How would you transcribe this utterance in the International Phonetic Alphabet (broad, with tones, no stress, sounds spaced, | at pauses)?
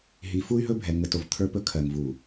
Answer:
ɦ i˨ f u˦ y̯ ɦ ɵ˦ bʱ ɛ˨ ŋ ə˨ t o˨ v t̪ʰ ə˞˦ p ɵ˦ kʰ ɜ˨ ŋ v u˨